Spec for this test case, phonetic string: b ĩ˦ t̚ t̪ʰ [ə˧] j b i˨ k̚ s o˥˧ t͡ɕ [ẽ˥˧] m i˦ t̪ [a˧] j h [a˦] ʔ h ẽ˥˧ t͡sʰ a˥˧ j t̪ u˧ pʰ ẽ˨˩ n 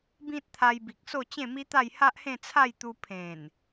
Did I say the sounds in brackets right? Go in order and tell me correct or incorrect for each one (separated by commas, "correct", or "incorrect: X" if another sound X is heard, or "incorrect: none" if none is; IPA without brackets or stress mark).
incorrect: a˧, correct, incorrect: a˥˧, correct